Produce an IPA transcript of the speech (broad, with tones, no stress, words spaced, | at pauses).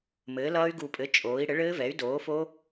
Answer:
mɘː˩˥lʌː˦˥y̯ ɡu˨˩pʼɘ˩˥ t͡ʃʼoː˩˥i̯ ɽɘ˩˥ɭɘː˦˥vɛ˩˥y̯ doː˩˥fo˦˥